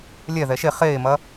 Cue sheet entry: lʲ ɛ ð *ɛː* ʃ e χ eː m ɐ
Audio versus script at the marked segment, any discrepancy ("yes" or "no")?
yes